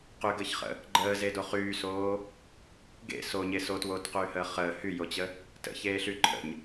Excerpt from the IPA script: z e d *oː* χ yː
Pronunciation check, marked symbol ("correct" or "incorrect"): incorrect